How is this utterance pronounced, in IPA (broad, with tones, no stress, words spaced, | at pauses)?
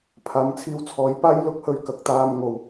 pʰaː˨mt͡sʰiː˧wt͡sʰɔː˨˧jpaː˥j lʊ˧k̚hɵ˧ɥ kɐ˨k̚t̪aː˧mŋo˨w